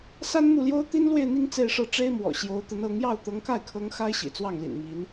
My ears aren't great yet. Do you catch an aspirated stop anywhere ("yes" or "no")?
yes